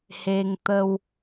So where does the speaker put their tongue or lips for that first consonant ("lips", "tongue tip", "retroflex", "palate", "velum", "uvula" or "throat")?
throat